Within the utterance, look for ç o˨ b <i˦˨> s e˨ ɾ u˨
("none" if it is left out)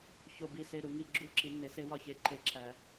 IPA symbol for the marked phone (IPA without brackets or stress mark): i˨